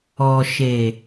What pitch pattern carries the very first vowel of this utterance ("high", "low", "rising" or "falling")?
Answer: low